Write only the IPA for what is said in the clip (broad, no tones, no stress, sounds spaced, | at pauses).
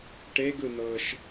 ʈ e ɡ ɯ n̪ ɤː ʃ